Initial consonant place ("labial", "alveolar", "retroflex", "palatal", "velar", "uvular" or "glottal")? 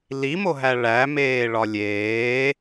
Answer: alveolar